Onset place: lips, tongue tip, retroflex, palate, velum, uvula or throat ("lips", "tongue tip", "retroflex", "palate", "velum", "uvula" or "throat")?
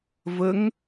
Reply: lips